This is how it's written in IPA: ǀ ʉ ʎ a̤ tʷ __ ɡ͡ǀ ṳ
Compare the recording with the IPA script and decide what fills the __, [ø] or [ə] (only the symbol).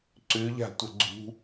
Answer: ə